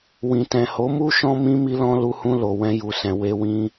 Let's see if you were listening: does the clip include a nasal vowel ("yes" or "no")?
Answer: yes